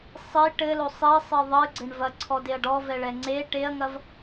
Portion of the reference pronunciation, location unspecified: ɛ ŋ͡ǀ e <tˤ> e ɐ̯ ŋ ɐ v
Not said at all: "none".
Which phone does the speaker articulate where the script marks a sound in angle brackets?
ʈ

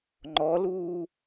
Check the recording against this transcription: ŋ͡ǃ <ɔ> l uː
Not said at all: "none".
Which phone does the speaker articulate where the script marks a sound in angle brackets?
ɔ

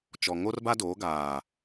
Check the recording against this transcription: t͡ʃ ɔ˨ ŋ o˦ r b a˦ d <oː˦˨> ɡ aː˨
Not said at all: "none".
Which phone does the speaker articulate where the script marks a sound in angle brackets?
oː˨˦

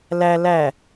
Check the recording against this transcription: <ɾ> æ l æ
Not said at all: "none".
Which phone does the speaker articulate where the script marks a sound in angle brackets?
l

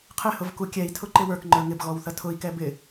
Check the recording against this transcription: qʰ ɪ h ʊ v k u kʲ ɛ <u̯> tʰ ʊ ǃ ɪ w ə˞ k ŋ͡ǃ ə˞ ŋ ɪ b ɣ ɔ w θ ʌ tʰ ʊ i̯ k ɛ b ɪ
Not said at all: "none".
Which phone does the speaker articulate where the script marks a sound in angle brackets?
i̯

